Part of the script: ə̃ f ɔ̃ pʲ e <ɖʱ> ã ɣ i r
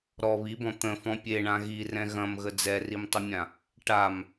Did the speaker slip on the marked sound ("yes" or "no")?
yes